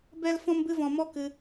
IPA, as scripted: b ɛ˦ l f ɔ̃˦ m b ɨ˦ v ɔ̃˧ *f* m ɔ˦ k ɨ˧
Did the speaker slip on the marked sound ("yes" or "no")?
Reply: yes